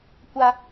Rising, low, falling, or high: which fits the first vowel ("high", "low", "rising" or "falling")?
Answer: high